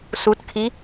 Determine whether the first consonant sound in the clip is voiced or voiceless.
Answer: voiceless